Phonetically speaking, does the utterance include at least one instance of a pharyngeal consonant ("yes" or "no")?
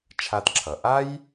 no